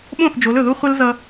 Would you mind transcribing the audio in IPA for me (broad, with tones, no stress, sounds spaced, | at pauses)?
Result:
ɓ õ˦˨ θ d͡ʒ o˨˦ l ɵ˨ ð u˦ χʷ ɛ˦ l z ʌ˦